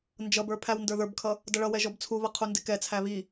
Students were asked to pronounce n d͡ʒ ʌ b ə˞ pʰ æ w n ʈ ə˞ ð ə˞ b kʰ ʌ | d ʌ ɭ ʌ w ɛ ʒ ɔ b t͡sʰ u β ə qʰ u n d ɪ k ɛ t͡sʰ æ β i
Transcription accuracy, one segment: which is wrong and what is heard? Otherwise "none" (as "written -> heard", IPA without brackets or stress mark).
ʈ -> d